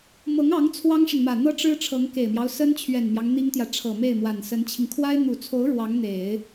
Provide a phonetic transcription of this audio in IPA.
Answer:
mɤ˧˥ŋɑ˧˥ŋ t͡sʰwɑ˥ŋʂə˨nmä˨˩ n̪ɤ˥ʈ͡ʂɻ̩˥ ʈ͡ʂʰɤ˧˥ŋke˨˩ɪ̯mjɑ˦ʊ̯ sə˥nt͡ɕʰɥɛ˨˩nmjɑ˦ŋ n̪i˥ŋt̪jä˨ ʈ͡ʂʰɤ˨˩ me˥˩ɪ̯mwa˨˩nsə˧˥nt͡ɕʰi˧ŋ kʰwa˥ɪ̯ n̪u˨˩t͡sʰo˧˥ʊ̯ ɻwɑ˧˥ŋn̪e˨˩˦ɪ̯

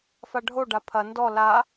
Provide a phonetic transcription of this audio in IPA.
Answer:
faɖʱoɖa pʰɐ ndɔ la

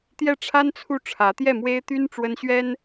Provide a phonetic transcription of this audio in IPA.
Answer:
t̪jɛ˥˩ʈ͡ʂʰa˥nt͡sʰu˥˩ ʈ͡ʂʰä˧˥t̪jɛ˥˩mwe˥ɪ̯t̪y˥n ʈ͡ʂwə˥nɕɥɛ˥n

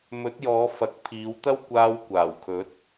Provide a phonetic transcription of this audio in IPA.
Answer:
mɵ˨˥t̚jɔː˨˧ fɐ˨˥k̚pʰiː˨˧wt̪ɐ˥w kʷaː˧w kʷaː˨˩wkʰɵ˨˥t̚

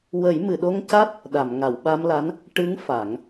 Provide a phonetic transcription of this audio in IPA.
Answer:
wə˨˩˦jmɨ˨˩˨ɗo˧ŋca˦˥t̚ | ɗa˨˩˨mŋa˨˩˨wɓa˧mla˧˥n | ʈɨ˧˥ŋ fa˨˩˦ŋ

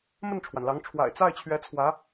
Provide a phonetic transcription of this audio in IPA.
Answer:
mə˥˩nʈ͡ʂʰwa˩nlɑ˧˥ŋ ʈ͡ʂʰwa̰˨˩ɪ̯ t͡sa˥˩ɪ̯t͡ɕʰɥɛ˧˥t͡sʰwä˧˥

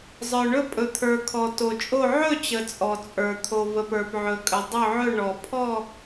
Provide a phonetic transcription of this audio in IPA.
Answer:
zˤə˞˨ɳɵ˥˧ pʼɵ˨t̪ʰə˞˨ kʰɔ˨ to˨t͡ʃʼo˥˧ ʕɵ˥˧t͡ɕə˨ t͡sʼɔ˨t͡sʼə˞˨ t̪ʰo˨və˨p ə˞˨pʕɵ˨kʼə˨ dˤɵ˥˧ʕɵ˥˧ ɳɔ˨ pʰɔ˥˧

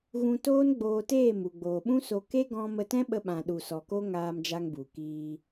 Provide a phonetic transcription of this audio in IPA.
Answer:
ɣũ˧toː˦n ɡ͡boː˧teː˦˨m u˨ ɡ͡boː˨ɓũ˦so˧ ke˦ɡɔ̃˧ mə˧tɛ̃˦ɓə˧ ɓã˨ɗu˨sɔ˨ko˦ ŋaː˧md͡ʒa˧ŋbu˨kiː˧

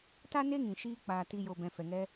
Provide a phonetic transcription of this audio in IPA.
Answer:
ta˦ne˦ŋĩ˨ ʃiː˧ k͡paː˨ti˨jo˨ bɛ̃˨fɛ˨ŋɛ˧

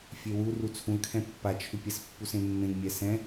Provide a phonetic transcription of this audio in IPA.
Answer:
fʲewu rut͡sʰũə̯kʰɛ̃ pːat͡ʃʰʏpʲɛs pːusẽmːẽŋ mʲɛsɛ̃

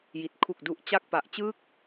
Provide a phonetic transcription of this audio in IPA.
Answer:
ji˨˩t̚ kʰu˨˩k̚du˨˩ʔ t͡ɕa˥˩k̚ pa˨˩ʔt͡ɕɯː˥˩k̚

